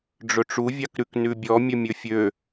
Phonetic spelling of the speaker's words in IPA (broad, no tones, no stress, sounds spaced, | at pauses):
ɖ͡ʐ ɵ ʈ͡ʂ u vʲ ɑ k ɾ ʉ k n ʉ bʲ ɔ mʲ ɵ mʲ ɵ fʲ ø